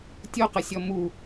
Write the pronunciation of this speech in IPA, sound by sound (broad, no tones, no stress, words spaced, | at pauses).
tʲoqəsʲɔ mu